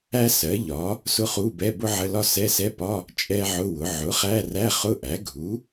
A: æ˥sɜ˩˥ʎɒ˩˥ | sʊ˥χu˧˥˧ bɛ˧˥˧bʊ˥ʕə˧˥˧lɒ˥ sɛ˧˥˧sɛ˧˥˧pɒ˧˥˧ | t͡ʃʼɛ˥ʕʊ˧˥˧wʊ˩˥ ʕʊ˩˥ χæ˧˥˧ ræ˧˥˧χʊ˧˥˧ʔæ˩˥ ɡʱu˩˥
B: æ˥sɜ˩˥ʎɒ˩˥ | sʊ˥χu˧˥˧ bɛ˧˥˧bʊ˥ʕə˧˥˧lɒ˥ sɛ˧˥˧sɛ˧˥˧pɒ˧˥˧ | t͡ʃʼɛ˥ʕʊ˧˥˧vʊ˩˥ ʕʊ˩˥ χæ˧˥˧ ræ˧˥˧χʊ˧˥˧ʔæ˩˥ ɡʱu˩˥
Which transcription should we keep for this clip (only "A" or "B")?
A